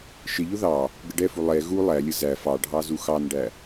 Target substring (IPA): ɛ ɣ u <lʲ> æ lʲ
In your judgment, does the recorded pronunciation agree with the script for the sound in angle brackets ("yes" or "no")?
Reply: no